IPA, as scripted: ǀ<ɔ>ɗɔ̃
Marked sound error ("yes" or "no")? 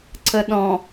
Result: yes